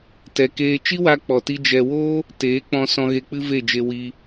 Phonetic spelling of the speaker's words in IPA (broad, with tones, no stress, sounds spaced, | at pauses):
t ɛ˧ k eː˦ t͡ʃ i˦ w a˧ k͡p ɔ˨ t i˧ d͡ʒ ɛ˧ w oː˦ | t eː˨˦ k͡p ɔ̃˧ s ɔ̃˧ ɣ e˧ k͡p ɨ˦ v e˦˨ d͡ʒ e˧ w i˦